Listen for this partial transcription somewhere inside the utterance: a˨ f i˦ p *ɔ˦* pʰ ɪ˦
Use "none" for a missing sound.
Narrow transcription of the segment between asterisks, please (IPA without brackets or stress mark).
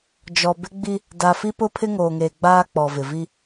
ʊ˦